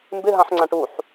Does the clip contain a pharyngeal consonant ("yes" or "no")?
yes